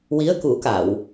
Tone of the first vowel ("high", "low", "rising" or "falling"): rising